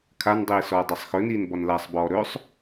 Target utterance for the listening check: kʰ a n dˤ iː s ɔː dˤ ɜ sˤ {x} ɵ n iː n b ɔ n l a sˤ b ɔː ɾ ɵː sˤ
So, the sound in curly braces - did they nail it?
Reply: yes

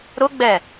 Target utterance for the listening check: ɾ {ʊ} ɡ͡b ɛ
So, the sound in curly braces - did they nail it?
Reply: yes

